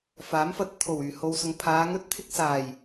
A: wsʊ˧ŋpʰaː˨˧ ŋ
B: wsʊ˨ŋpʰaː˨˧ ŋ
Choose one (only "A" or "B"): B